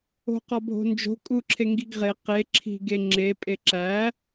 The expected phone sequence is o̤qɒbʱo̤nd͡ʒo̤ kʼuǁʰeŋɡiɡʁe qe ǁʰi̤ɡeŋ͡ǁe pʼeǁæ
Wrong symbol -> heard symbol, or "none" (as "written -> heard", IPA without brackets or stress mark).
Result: none